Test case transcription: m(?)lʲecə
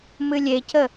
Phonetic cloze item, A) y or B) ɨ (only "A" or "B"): B